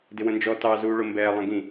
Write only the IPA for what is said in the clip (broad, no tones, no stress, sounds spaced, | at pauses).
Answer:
d ɪ w ə̃ n d͡ʒ ɔ t ɑ z uː ɭ ʊ m b ɛː lˠ ɛ̃ ɡ ĩ